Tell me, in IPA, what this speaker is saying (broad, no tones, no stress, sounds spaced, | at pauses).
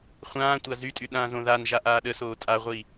χʷ ãː tʷ a z y tʼ y ɗ ãː z õ ð a n ʒ a ʔ aː ɗ ə s oː tʼ a ʁʷ iː